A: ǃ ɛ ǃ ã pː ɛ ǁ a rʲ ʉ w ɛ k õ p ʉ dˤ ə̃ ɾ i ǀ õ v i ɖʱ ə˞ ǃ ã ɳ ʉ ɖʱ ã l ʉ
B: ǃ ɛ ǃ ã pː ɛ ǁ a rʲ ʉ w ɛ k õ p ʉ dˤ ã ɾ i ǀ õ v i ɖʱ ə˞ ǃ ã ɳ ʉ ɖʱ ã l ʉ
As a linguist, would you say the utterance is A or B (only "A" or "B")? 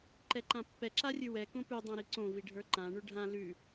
B